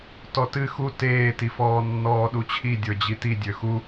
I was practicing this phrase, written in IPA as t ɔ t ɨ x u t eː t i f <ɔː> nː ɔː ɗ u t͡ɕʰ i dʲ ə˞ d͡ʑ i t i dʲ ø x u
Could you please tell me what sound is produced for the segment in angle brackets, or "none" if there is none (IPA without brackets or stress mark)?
ɔː